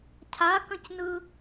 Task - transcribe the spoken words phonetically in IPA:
cʰ a k ə̃ c n ɯ

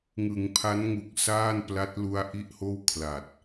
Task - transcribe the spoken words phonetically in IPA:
ŋ ɯ˩˦ ŋ pʰ a˦˥ n ŋ u˨˩ k̚ s aː˥˩ n p l a˦˥ t̚ l u˧ a̯ ʔ i˥˩ ʔ h oː˥˩ w kʰ l a˨˩ t̚

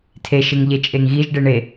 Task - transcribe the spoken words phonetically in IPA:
tʰ e ʃ e ŋ ʎ e t͡ʃʼ e ŋ ɣ i ʒ ɖ e ɳ e

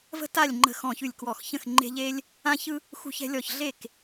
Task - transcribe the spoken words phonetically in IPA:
v ə̤˦ t a˦˨ lʲ ŋ͡ǃ ə̤˦˨ x ɔ̃˦˨ ç ʉ˦˨ lʲ k w ɔ˦˨ x ç ə̃˦˨ x ŋ͡ǃ e̤˦ ʎ e˦ lʲ | ã˦ ç ɯ˦ | x ṳ˦ ç ɛ̤˦ lʲ ɔ˦˨ ç ɮ e˦˨ k

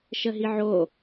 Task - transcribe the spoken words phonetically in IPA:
ʃ ə ɦ i ʕ o

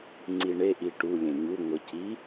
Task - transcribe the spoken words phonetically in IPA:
ŋ͡ǀ i ɳ e ʔ i ʈ u lʲ ẽ ɲ u ŋʷ ə c i

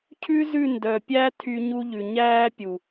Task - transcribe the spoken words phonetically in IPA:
cʰ ʉ˦ z ʉ˦˨ n d œ˨ pʲ æ˦ tʰ y˦ ɲ u˦ ʎ ʉ˨ ɲ æː˦ pʲ u˨

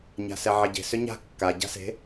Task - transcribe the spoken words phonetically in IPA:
ɲ a̤ s ɛ ʕ e ɟ e̤ s ʏ ɲ a̤ kː a ɟ a̤ s e̤

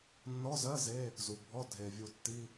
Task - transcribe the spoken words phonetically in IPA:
nː ɔ˧˥˧ z ɜ˧˥˧ z e˧˥˧ | z u˩ bʱ ɔ˧˥˧ dʱ e˩ vʲ u˧˩ tː i˧˥˧

